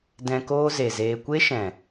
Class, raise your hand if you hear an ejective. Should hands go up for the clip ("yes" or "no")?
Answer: no